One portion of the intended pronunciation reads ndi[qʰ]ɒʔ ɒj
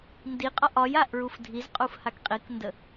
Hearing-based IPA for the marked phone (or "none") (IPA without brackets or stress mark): qʼ